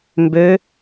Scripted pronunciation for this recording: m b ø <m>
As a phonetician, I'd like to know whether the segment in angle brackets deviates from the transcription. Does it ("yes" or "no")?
yes